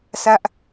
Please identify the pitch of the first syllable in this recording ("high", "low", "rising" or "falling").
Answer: falling